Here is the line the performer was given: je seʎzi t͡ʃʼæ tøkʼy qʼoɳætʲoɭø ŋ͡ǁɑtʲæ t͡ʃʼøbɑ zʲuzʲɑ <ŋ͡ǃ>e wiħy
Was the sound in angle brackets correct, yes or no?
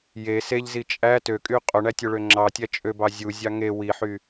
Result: no